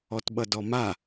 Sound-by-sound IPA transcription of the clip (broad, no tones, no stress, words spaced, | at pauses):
ɔtɓʌdɔma